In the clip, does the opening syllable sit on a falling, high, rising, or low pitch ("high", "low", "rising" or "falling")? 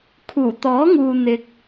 low